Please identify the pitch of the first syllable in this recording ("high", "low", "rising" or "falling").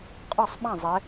falling